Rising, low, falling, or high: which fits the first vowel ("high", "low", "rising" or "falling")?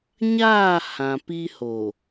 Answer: falling